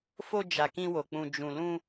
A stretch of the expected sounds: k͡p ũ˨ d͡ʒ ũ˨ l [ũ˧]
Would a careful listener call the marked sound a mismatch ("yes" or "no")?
no